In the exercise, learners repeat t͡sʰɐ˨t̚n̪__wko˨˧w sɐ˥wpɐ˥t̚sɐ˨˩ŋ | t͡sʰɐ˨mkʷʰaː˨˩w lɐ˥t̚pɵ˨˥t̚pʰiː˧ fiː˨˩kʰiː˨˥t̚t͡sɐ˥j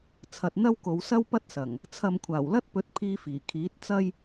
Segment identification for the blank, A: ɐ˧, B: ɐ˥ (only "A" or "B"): B